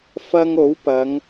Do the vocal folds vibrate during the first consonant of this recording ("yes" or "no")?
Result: no